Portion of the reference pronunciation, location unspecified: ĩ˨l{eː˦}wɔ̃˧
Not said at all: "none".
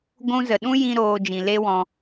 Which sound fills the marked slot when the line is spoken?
e˦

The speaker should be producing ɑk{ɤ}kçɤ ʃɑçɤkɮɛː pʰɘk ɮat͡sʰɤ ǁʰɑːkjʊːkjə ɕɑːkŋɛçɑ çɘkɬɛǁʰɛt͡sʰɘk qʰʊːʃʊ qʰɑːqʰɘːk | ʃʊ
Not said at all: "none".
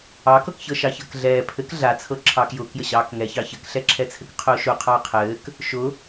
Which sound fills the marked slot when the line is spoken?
ɤ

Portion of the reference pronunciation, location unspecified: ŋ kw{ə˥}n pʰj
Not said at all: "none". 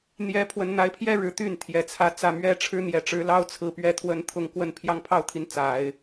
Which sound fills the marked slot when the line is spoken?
ə˥˧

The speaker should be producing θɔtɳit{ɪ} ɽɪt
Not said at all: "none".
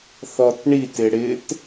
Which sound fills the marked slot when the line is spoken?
ɪ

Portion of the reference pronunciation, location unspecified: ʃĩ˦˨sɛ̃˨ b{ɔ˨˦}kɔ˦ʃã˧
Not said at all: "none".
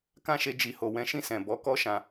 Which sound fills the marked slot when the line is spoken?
ɔ˨˦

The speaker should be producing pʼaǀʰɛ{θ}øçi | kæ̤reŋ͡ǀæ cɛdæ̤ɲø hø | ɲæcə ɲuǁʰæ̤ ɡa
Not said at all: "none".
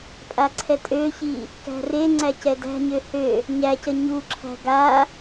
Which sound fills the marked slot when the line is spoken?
tʼ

